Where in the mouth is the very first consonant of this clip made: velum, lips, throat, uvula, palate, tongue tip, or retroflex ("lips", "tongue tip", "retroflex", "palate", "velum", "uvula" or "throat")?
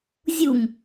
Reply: tongue tip